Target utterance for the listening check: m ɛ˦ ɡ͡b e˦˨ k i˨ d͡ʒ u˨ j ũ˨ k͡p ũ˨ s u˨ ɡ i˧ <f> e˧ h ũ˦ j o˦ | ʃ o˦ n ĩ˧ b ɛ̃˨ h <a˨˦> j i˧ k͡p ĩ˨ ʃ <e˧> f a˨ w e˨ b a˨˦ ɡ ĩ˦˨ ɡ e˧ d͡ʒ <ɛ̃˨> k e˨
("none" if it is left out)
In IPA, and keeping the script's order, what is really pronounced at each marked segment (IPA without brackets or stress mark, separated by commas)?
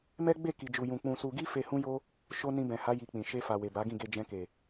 f, a˨˦, e˧, ɛ̃˧